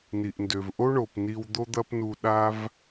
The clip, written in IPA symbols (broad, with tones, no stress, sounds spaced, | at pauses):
n i˩ ʔ n d ø˩ v ʔ o˥ ɳ o˩ p n i˧ w d̪ o˥ d̪ ɐ˥ p n u˧ ɗ a˥ v